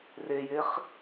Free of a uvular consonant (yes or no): no